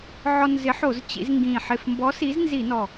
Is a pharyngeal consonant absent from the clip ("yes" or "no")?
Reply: no